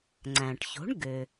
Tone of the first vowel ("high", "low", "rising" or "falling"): low